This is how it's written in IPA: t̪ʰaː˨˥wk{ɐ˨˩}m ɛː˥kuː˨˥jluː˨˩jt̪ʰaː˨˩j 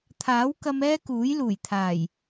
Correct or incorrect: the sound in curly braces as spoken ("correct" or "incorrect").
incorrect